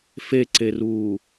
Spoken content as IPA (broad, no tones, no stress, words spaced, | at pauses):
feǀeruː